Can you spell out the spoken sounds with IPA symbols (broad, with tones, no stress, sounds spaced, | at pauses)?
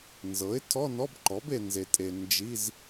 n z ɤ˩˥ ɪ̯ tʰ ɔ˧˥˧ n ɔ˧˥˧ b ǃ ɔ˩˥ b e˨ n z e˨ tʼ e˨ n d͡ʒ i˧˥˧ z